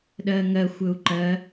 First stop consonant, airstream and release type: implosive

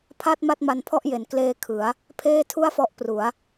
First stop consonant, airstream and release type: aspirated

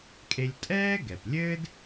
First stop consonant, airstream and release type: ejective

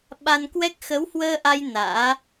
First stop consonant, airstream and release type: implosive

